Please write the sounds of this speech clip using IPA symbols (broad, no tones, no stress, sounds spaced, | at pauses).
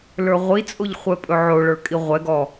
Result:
l ə˞ ʁʷ i t͡sʼ o ʎ χʷ ɛ pʼ ɵ ʕ o ɭ ə˞ kʼ i ʁʷ ɛ ɡ ɔ